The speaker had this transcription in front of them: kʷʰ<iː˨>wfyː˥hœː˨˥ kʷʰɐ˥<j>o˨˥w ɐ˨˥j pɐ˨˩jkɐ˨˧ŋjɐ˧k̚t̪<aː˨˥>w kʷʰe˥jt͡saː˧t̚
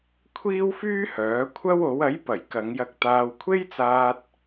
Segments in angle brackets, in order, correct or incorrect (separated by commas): incorrect, incorrect, incorrect